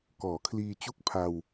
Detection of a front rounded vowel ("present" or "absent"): absent